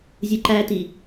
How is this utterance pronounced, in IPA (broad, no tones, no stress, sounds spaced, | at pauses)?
zʲ ɯ ǃ æ t i